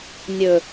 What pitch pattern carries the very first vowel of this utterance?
low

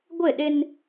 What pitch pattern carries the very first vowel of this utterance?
falling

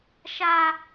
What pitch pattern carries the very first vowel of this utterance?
high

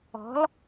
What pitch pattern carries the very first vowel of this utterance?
rising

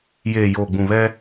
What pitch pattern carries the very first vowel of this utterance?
low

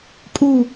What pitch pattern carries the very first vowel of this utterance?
falling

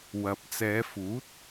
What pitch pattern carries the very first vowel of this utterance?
low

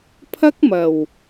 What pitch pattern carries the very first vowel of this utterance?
high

